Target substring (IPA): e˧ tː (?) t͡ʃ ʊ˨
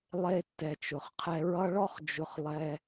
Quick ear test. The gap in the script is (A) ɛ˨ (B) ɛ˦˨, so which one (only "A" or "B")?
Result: A